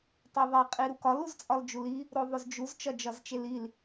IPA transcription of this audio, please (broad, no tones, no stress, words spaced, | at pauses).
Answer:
tˤeðˤe qʼiɾukɒl uzt͡sʼɒld͡ʒuli | ɾoðˤozd͡ʒuz t͡ʃɒd͡ʒɒzt͡ʃelil